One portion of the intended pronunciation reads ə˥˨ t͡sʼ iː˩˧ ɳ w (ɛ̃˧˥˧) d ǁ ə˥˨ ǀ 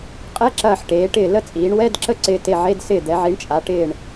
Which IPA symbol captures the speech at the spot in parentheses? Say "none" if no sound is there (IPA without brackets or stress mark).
ɛ˧˥˧